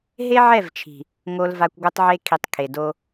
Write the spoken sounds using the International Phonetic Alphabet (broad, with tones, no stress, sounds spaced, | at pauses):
ɦ e˦ ʕ ɛ˦˨ v t͡ʃʰ i̤˨ | ŋ o˨ l v a˨ kʷ ɡʷ ɯ˨ tˤ ʕ e˦ kʰ i˨ tˤ kʰ e˨ d o˦